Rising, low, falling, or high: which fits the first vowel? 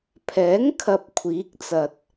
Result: rising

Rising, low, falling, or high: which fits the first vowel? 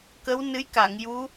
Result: rising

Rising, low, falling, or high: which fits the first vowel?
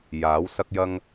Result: rising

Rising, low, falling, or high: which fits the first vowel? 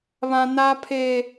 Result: high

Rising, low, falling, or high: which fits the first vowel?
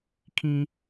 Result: high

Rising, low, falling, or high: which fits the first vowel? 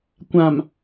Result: low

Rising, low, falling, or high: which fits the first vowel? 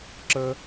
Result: high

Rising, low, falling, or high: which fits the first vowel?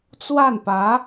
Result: falling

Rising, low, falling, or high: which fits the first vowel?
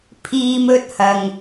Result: high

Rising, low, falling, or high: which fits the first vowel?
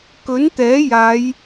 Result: rising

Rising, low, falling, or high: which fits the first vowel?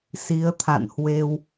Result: rising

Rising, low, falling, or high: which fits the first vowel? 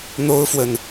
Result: high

